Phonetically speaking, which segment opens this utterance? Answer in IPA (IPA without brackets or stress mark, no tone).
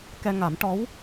k